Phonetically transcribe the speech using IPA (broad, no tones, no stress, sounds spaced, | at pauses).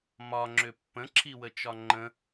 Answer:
m ɒ ŋ͡ǁ ʏ pː ə̃ ǁʰ i w ə t͡ʃ ɒ ŋ͡ǃ ə̃